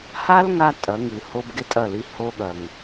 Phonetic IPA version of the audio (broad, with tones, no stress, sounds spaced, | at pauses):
h a˦ l ŋ a˧ tʼ ɐ˨˦ ŋ ɨ˨ h o˦ b ɡ e˦ tʼ ɐ˦˨ l i˧ h o˦ ɠ ɐ˨ ŋ